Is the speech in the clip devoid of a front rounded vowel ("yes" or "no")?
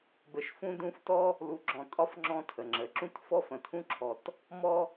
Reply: yes